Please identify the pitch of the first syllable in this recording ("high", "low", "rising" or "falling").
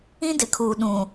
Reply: high